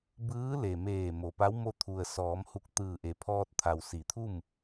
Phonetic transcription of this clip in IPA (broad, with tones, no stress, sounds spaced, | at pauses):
b ɯː˧˥ l e˩ m eː˧˩ m o˩ p a˧˥ w m o˧˥ t̪ʰ u˩ ə̯ s ɔː˩˧ m h u˧˩ k̚ t̪ ɯː˧˩ ʔ e˩˧ pʰ ɔː˧ t̚ t̪ʰ a˩ w s i˩˧ t̪ʰ u˥˨ m